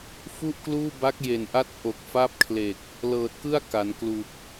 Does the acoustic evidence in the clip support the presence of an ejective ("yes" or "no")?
no